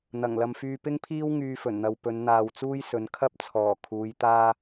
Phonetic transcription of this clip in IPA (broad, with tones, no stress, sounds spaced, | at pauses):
n̪ ɐ˨˩ ŋ l ɐ˨ m f yː˧ p ɪ˥ ŋ pʰ iː˥ w ŋ yː˧ f ɵ˨˩ n n̪ ɐ˨ w p ɵ˨˧ n n̪ aː˨ w t͡s uː˥ j s ɵ˨˧ n kʰ ɐ˥ p̚ t͡sʰ ɔː˨˩ kʰ uː˨˧ j t̪ aː˧